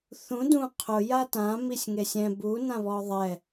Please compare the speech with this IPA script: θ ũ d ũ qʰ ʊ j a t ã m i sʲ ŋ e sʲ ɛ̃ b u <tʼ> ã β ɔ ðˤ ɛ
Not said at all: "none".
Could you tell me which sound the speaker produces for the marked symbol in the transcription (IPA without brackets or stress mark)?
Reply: n